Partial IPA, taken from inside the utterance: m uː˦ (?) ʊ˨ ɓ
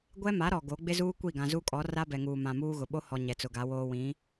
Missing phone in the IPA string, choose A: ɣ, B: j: A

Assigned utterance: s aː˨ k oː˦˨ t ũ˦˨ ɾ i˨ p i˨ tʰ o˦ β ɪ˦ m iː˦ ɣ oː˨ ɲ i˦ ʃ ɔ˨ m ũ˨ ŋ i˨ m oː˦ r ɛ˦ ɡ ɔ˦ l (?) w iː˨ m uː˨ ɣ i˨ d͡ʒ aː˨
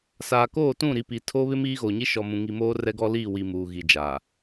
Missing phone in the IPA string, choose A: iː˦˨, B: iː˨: A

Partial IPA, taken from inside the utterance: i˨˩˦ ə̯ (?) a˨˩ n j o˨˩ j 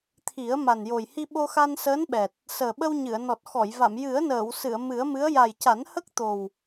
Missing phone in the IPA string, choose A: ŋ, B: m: B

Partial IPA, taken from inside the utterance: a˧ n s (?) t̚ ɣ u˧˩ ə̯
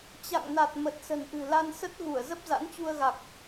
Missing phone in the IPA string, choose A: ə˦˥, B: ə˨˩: A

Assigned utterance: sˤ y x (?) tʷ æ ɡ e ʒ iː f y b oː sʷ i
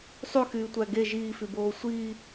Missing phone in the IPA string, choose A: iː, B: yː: B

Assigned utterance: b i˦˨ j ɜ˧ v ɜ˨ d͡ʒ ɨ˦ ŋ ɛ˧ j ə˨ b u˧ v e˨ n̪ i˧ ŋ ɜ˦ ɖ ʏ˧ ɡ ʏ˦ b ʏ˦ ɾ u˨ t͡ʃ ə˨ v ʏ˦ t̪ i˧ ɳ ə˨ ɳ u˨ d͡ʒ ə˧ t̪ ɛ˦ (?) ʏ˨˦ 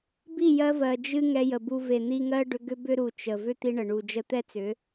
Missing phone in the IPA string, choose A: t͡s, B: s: A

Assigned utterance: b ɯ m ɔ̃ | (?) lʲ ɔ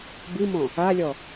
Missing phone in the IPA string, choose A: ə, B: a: B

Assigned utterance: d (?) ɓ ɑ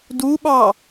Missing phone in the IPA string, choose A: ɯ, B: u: B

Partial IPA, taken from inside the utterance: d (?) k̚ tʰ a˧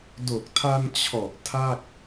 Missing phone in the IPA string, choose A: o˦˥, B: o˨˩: B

